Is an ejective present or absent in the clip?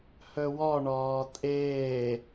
present